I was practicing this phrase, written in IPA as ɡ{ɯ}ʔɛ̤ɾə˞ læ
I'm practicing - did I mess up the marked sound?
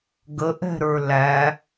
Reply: yes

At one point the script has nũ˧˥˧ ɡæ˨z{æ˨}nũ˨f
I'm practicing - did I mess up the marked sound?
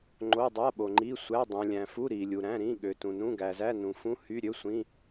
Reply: yes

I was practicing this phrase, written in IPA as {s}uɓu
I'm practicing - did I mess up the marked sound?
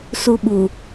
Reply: no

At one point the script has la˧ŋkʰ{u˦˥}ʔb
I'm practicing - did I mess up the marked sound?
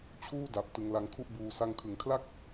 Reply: yes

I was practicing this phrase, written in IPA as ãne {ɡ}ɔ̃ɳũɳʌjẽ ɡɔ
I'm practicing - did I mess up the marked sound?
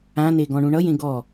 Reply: no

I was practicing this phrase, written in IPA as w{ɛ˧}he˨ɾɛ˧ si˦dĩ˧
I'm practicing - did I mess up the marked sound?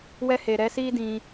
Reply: no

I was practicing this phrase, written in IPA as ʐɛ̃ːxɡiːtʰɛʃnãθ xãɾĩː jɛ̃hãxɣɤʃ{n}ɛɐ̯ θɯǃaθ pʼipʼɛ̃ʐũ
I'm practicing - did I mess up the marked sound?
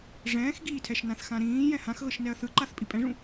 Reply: no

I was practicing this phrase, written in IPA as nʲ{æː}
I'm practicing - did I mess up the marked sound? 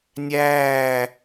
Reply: no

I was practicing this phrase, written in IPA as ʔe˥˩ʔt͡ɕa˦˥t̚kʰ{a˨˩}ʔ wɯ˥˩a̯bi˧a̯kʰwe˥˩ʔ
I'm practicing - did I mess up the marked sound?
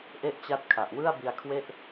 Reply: no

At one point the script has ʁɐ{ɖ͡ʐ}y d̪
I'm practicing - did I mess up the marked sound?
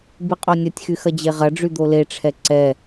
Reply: no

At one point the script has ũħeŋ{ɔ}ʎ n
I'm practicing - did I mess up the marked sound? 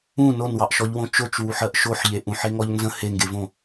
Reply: no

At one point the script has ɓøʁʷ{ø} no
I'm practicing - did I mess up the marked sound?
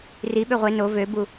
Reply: yes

